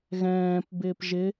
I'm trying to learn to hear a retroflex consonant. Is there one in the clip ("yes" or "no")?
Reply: no